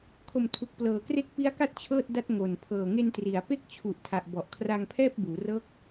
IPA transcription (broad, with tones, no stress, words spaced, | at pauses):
kʰo˨˩mtʰu˨˩k̚ plɤː˨˩kre˦˥k̚pi˦˥a̯ka˥˩t̚ t͡ɕʰɤː˥˩t̚da˥˩t̚ ŋo˨˩n pʰɤː˨˩ŋe˧ntri˩˦a̯ pe˥˩k̚t͡ɕʰu˨˩ʔtʰa˨˩ʔ bɔ˨˩ʔ kʰra˧ŋpʰɛː˥˩p̚ buː˩˦rɤː˦˥k̚